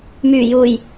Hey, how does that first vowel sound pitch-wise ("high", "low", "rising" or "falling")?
low